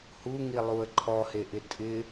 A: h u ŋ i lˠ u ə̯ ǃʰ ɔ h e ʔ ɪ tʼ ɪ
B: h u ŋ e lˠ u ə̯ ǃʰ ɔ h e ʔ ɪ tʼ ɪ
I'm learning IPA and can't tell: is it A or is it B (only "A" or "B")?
A